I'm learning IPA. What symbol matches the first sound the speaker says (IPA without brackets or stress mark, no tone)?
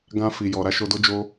ɡ